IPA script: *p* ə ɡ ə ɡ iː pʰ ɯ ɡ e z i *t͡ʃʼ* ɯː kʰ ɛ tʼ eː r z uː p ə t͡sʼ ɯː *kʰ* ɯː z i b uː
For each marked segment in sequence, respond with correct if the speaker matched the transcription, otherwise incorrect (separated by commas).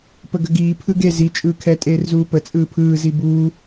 correct, correct, incorrect